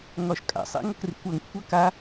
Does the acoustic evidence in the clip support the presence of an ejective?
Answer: yes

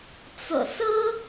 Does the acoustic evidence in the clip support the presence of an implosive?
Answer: no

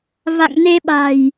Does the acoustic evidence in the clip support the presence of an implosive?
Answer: yes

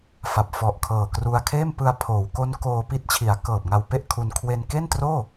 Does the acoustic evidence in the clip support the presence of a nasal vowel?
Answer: no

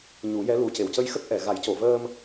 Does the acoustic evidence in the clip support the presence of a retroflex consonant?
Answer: no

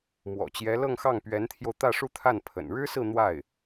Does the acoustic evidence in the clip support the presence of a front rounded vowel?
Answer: no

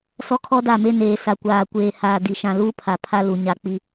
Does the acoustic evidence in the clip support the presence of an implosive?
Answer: no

